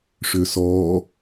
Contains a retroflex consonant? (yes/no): yes